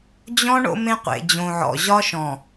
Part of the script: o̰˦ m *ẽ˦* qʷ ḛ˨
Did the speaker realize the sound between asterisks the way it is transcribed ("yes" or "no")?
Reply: yes